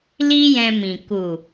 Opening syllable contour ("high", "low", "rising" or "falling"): high